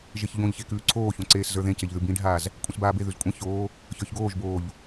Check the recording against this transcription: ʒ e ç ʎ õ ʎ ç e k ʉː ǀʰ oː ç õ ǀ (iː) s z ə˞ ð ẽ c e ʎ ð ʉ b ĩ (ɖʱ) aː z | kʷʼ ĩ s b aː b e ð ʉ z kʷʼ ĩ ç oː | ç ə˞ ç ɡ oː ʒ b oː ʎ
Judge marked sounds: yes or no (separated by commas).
no, yes